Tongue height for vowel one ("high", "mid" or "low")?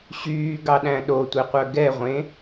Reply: high